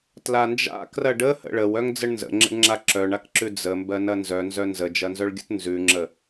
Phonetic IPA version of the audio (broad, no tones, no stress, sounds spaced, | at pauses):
t l a n d͡ʒ a̰ k r ɐ ɖ ə h ə̰ ɭ ə w œ ŋ d͡z ə ɳ n z ə̰ ŋ͡ǁ ə̰ ɳ ŋ͡ǁ a ǁ œ ɳ a k ǁ ʉ d͡z ə m b ɜ n ɐ n z œ n z œ n z ə d͡ʒ ɐ n z œ ɭ ɡʲ ə̰ t n z ʉ ŋ͡ǁ ə